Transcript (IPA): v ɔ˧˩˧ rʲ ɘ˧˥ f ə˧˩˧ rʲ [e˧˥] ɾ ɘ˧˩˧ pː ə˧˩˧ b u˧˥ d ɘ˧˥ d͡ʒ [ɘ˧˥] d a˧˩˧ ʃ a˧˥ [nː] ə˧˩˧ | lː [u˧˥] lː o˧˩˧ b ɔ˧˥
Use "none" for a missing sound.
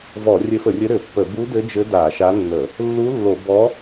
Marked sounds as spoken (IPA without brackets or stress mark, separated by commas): ɘ˧˥, ɘ˧˥, nː, u˧˥